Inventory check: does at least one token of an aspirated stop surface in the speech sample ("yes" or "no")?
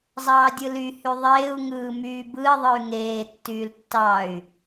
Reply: no